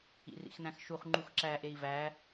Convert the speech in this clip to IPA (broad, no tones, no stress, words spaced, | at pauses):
ḭrḭxnæ̃xʃuχ ŋ͡ǃuxǁæ ʔei̯væ